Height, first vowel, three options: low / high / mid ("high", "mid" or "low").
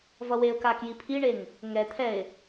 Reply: mid